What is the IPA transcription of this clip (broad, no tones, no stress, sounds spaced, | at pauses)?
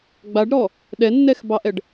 ɡ͡b a ɖ ɾ ɔ | ɗ ɛ nː ɛ x b ɑ ʔ ɛ ɖ